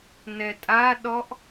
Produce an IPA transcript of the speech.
n ɛ tʼ a ɗ ɔ ʔ

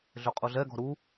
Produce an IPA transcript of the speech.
ɮ ø qʼ u ɮ ɛ ɡ ɔ̤ ɾ u

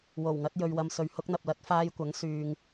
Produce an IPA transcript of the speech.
w o˨˩ w ŋ ɐ˨˥ t̚ j ɵ˨ ɥ w ɐ˨ m s ɵ˨ ɥ h ʊ˧ k̚ n̪ ɐ˨ p̚ l ɐ˨˥ t̚ f aː˧ j kʷ ɐ˨˥ ŋ s yː˨ ŋ

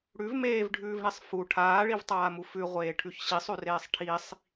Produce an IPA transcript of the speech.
ɽ ʉ v m eː v ɖʱ ʉː v ɳ i sˤ f u ʈʰ aː ɭ i v tˤ aː m u f ʉ ʁʷ eː ʈʰ ʉ ç ɕ i sˤ ʉ r eː sˤ ʈʰ i sˤ

